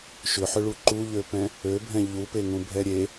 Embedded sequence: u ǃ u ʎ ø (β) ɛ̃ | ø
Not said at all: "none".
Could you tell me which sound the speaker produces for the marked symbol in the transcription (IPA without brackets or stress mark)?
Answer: p